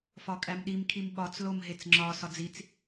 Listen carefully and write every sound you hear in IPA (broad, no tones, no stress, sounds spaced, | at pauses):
f ɒ kʼ æ m ɗ i m kʰ i m ɓ ɒ t͡s l o m ɦ e t͡s ŋ͡ǁ ɒ s ɒ d͡z i t͡s